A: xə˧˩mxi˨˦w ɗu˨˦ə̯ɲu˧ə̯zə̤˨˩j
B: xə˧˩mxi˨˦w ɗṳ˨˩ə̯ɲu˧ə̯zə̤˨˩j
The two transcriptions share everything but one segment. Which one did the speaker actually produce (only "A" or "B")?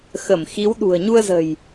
B